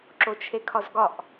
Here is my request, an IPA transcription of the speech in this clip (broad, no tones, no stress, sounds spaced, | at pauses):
ǁ o t͡ʃʰ e kʰ ɒ z ɡ ɒ ʔ